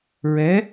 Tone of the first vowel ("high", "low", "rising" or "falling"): rising